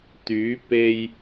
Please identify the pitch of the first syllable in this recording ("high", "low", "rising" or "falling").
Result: rising